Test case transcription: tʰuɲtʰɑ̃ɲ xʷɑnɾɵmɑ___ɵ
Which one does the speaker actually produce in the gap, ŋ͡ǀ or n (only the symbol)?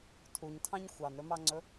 ŋ͡ǀ